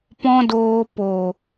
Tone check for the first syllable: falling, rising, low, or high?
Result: high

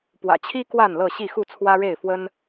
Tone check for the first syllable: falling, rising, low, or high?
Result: low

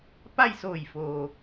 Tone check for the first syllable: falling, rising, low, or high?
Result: falling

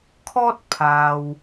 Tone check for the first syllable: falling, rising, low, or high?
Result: high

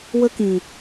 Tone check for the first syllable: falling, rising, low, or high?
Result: high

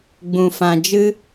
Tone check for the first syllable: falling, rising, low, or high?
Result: low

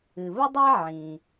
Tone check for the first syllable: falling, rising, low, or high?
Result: low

